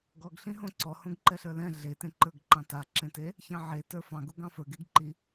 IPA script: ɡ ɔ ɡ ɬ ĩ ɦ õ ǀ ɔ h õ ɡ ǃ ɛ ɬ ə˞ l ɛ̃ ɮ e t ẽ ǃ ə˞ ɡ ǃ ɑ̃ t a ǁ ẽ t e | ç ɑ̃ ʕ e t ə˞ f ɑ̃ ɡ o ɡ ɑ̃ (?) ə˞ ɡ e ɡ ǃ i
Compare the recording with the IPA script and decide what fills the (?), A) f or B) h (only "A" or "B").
A